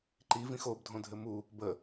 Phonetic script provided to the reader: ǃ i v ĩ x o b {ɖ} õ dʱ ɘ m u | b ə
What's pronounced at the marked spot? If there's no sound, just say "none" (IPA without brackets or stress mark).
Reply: dʱ